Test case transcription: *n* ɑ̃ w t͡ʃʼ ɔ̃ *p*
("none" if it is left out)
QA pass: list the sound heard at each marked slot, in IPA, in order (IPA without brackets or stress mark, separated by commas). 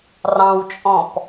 r, p